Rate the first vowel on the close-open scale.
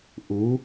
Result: close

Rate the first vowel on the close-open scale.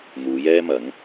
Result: close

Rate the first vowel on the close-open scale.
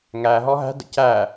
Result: open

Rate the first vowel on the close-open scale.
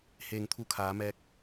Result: mid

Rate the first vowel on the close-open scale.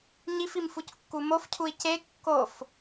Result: close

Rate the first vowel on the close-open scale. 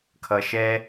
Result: mid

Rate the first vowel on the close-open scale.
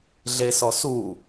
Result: mid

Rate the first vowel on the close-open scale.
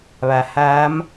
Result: open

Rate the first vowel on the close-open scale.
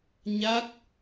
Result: open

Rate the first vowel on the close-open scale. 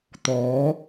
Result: mid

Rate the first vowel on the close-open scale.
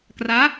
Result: open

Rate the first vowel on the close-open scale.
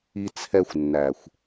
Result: close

